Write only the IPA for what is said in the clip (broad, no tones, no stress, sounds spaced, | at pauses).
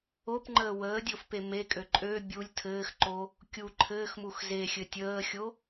o p ŋ͡ǃ əː w əː dʲ o f p e m e kʼ ø ǃʼ ø bʲ u lʲ tʰ ɘː x ǃ o | kʲ u ǃʰ ɘː x m u x z e xʲ ɘ tʲ əː xʲ o